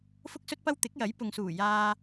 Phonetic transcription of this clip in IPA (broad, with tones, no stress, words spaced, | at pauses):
fʊ˥k̚sɵ˥t̚pɐ˥w t̪ɪ˨˥k̚jɐ˨˥jpʊ˨ŋsuː˨˩ jaː˧